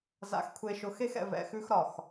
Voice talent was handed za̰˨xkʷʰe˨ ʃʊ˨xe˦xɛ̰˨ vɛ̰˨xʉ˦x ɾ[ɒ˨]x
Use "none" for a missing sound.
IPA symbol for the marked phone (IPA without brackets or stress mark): ɒ˨